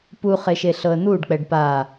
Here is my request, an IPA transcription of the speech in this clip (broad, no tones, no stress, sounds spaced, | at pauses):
p u χ e ʃ e ɬ ɤ ə̯ n̪ u ɖ k͡p ɛ ɖ p a